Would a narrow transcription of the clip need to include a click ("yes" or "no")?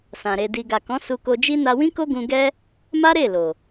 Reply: no